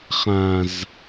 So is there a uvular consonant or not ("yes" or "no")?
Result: yes